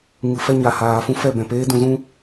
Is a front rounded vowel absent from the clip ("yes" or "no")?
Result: yes